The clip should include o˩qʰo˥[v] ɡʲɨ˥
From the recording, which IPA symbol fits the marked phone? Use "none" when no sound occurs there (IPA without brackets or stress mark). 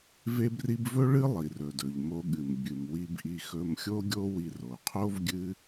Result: v